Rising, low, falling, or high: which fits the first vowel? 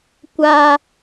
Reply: high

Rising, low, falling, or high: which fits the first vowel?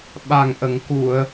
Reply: low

